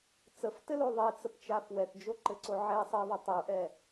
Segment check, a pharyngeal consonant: present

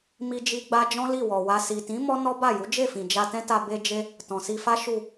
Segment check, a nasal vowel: present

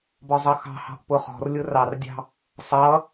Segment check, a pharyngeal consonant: absent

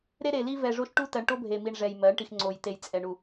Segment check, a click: present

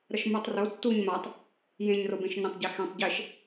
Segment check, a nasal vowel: present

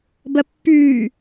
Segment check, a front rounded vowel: present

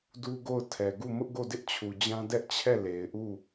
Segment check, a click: absent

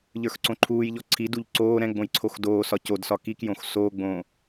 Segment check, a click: present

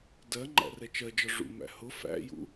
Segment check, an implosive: absent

